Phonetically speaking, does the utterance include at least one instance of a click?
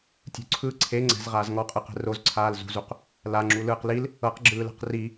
yes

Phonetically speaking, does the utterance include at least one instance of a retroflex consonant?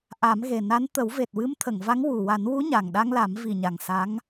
no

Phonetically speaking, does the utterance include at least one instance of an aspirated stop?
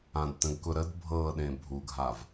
no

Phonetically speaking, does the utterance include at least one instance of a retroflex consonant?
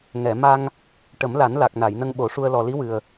yes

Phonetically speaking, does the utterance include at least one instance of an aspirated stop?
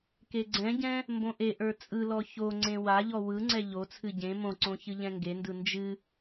yes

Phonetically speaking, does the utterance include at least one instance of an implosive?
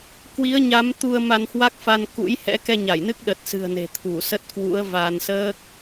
yes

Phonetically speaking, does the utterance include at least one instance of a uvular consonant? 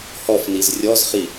yes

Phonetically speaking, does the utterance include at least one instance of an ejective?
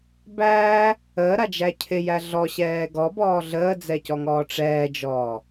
no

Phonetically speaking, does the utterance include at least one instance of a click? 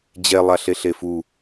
no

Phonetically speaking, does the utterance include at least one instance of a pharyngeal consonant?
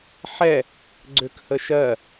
yes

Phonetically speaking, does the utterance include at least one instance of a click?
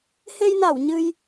no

